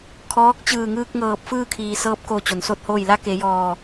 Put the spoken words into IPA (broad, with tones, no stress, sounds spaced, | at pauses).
kʰ ɔː˧˥ k̚ t͡ɕ ɯː˧˩ ŋ ɯː˧ k̚ ŋ ɤː˧˩ p̚ f ɯː˥˨ kʰ iː˧˩ s ɤː˧˥ p̚ k o˧˩ t͡ɕ o˩ n s o˥˨ t̚ h oː˥˨ j l a˧˥ k e˩˧ j ɔː˧˩